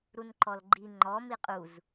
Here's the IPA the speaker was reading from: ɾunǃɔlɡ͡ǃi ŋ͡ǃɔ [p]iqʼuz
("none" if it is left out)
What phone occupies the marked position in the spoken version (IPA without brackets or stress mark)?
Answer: m